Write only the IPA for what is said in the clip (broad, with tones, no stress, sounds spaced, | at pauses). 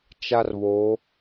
t͡ʃ a˦ r β oː˨˦